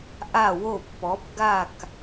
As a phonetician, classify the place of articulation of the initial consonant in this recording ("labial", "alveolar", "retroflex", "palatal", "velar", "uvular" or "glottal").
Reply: glottal